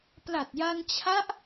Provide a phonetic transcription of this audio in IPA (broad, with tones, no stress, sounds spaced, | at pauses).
p l a˨˩ t̚ j a˧ n t͡ɕʰ a˦˥ ʔ